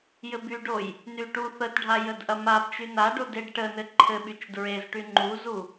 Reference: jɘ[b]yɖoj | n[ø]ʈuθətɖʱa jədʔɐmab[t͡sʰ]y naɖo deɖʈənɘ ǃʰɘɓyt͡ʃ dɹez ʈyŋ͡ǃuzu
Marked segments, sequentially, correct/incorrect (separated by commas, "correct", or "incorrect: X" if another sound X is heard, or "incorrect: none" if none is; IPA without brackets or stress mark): correct, incorrect: y, incorrect: t͡ʃ